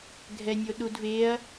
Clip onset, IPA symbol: ɡʱ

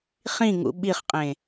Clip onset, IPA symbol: χ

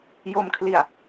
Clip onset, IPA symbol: j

